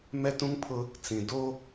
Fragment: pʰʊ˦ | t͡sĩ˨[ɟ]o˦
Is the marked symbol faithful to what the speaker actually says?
no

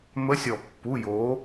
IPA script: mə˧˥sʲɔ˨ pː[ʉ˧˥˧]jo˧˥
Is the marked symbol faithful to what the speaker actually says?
no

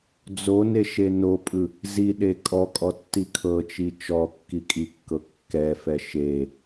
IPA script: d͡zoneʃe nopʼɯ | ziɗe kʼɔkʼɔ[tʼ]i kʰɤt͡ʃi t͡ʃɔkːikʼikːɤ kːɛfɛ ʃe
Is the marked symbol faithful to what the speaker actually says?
no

